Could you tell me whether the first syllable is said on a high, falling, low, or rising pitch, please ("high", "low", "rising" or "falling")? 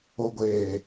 low